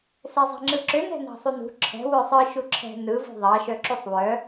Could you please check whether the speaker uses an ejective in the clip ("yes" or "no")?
no